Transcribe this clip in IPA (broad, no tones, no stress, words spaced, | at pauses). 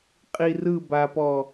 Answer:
qʼi rɯbapɔ